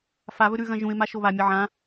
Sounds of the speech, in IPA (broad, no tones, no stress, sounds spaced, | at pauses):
f a β ɵ ɾ ʉ ɣ ɐ̃ ʒ ũ ɪ̯ m a ʃ o β a mʲ ɐ ʕ ã